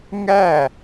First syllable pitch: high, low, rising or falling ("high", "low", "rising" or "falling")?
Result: falling